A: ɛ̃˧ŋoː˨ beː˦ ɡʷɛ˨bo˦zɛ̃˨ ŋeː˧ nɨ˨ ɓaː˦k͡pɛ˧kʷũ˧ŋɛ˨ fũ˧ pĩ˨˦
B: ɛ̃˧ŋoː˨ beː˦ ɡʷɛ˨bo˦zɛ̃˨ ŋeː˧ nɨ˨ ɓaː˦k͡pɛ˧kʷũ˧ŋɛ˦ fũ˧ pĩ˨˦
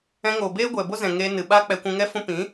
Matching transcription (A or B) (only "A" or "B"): B